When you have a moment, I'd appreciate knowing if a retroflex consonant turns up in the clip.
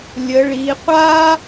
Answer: yes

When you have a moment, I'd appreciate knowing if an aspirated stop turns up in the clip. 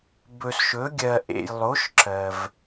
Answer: no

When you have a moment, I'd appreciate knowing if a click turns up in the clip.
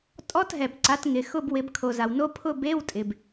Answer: yes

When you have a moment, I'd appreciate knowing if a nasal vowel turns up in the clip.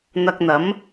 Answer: no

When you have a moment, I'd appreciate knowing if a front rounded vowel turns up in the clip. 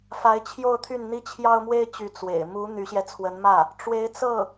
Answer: yes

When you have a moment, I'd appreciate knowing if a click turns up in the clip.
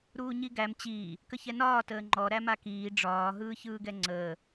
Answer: yes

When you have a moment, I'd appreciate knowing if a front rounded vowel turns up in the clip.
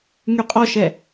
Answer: yes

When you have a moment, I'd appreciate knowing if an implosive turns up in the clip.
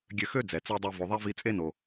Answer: no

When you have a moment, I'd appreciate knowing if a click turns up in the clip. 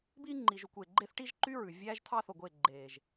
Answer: yes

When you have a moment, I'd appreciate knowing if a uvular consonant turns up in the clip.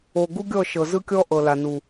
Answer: no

